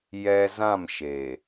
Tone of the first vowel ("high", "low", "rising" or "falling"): low